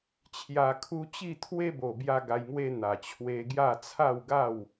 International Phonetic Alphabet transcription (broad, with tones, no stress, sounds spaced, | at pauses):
t͡ɕʰ j a˧ kʰ u˦ t͡ɕ i˥˧ t̪ʰ w e˦ b o˨˩ b j a˧ ɡ a˧ j ŋ w e˦ n̪ a˨˩ t͡ɕʰ w e˧ ɡ j a˥˧ t͡sʰ a˥˧ w ɡ a˥˧ w